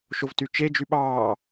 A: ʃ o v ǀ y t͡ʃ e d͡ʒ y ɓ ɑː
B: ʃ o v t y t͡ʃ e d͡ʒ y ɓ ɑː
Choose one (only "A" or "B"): B